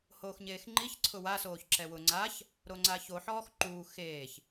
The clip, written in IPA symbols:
h oː x ɲ eː x ŋ͡ǃ i ç ǀʰ ʊ w a s oː ç ǁ ɛ w ʊ ŋ͡ǀ a ç | ɾ o ŋ͡ǀ a ç o ħ ɔː x ǃ uː x eː ç

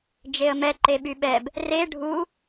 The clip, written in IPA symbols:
d͡ʒ e ə̯ m ɛ ǃ e ɓ y ɓ ɛ b | r e ɖʱ u

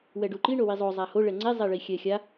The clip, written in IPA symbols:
w ɛ ɖ u ǃ i ɳ o w i zˤ o zˤ a h o ɭ ɛ ŋ͡ǀ e zˤ e ɭ i xʲ ɛ xʲ a

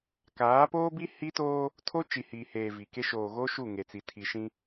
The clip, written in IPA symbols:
k aː˨˦ p oː˦ b i˦ h i˦ t oː˦ | tʰ o˦ t͡ʃ i˨ h iː˨ h eː˨ v i˨ k e˦ ʃ oː˨ ɣ o˦ ʃ u˦˨ ŋ e˨ t͡s i˨ tʰ i˨ ʃ ĩ˦

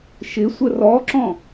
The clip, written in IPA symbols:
ʃ ɪ sʷ ə r ɔ ǁ ɔ̃

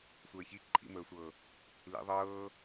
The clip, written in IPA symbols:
sʷ əː ç i ǃʼ ḭ m əː sʷ ɤ | l ḭ ðˤ ɤː

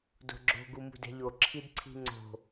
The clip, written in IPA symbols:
d o̤ ɡ͡ǁ o̤ ɡ u m ṳ d ɛ̤ ʎ o ǁʰ i d ǀʰ i̤ ŋ͡ǀ o̤

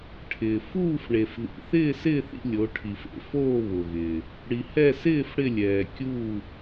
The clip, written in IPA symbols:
ʈʰ ɪː˩ f uː˥˨ f ɳ e˩ f ð ḭ˩ θ ɪː˥˨ s ɪː˥˨ θ ḭ˥˨ lʲ o˩˧ ʈʰ i˩ f ḛ˩ f oː˥˨ β ʊ˩ ɣ ɪː˩ | ɽ i˩ h ɛ˥˨ s ɪː˥˨ f ɽ ɪ˥˨ lʲ ɛː˩ kʲ uː˥˨

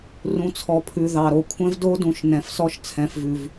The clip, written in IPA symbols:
r ũ˨ t͡sʰ ɔ˨ pʰ ʉ˨ ð ɑ˨ ɾ o˦ kʷʰ ɛ̃˦ v d o˦ d ũ˨ ʃ n ɛ̃˨ f s ɔ˦ ʃ t͡sʰ ɛ̃˨ f v ʉ˨ v

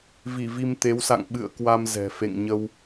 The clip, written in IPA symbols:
v i˧˩ v i˧ m t̪ e˨˦ w s a̰˧˨ ŋ ɓ ɨ̰˧˨ ə̯ k w a˧ m z ɛ̤˨˩ f ḛ˧˨ ŋ ɲ ə˧ w

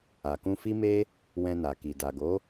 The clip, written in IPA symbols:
a˨ k ũ˧ f i˦ m e˦ | w ɛ̃˧ n a˨ k i˨ d a˨ ɡ o˨˦

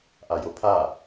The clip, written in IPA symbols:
ʔ a j o pʰ a

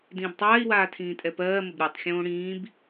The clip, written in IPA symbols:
d ĩː b tˤ aː i̯ w aː tʰ ĩː tʼ ɛ p ɜː m ə b ɾʲ o tˤ xʲ õː ɽ ĩː b

